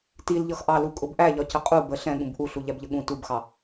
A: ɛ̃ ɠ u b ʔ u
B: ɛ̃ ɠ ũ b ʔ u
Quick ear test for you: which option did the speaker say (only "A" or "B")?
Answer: B